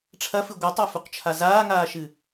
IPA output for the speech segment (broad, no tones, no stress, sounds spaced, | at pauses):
ʈ͡ʂʰ ɐ f ɨ ɡʷ ɨ tˤ a f u q t͡ʃʰ a z aː ŋ aː ʃ ɨ